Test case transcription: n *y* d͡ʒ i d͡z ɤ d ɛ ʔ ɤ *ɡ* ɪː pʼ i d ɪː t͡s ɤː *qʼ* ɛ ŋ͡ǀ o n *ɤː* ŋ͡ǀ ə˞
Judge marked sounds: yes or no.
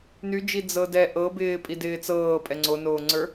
yes, no, no, no

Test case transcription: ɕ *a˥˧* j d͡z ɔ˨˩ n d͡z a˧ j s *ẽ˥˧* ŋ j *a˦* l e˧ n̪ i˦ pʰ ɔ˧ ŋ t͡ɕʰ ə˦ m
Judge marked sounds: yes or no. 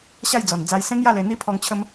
yes, no, no

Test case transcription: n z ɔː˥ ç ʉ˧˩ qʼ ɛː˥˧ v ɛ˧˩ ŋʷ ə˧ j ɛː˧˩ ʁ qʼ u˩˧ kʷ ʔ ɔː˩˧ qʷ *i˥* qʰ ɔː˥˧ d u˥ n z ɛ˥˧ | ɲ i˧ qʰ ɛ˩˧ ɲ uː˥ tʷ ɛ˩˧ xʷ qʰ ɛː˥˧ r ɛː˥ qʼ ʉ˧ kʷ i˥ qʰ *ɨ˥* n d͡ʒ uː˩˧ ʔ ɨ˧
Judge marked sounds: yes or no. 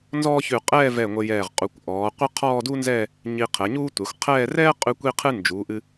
no, yes

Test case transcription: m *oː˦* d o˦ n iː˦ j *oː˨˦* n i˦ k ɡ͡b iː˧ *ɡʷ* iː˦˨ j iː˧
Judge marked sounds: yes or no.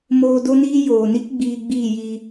no, no, no

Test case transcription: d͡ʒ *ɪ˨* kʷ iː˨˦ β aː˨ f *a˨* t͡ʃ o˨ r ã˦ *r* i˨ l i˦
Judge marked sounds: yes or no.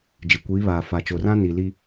yes, yes, no

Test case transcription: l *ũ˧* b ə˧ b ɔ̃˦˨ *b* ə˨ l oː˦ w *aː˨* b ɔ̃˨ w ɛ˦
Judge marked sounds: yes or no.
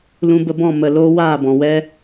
yes, no, no

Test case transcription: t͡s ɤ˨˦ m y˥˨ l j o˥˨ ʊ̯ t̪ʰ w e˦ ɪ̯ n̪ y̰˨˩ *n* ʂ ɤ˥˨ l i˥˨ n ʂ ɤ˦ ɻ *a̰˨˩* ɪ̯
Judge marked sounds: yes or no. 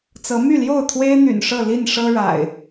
yes, yes

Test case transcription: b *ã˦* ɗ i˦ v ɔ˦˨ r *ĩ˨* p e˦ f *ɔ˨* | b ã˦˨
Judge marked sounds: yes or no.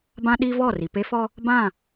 yes, no, no

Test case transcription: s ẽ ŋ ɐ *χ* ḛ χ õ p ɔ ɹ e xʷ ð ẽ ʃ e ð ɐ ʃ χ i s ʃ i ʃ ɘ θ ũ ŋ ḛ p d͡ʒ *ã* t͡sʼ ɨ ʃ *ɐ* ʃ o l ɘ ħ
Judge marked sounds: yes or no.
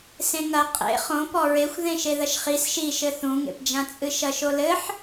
no, yes, yes

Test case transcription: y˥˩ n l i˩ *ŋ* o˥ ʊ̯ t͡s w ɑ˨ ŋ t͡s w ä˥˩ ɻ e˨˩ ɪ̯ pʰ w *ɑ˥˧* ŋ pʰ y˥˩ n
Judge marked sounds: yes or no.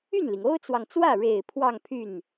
yes, yes

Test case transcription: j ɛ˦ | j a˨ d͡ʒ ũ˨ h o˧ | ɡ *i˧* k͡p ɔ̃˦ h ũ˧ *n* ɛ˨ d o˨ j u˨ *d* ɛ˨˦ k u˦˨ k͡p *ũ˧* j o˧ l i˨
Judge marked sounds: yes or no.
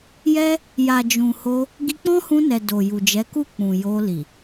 yes, yes, no, no

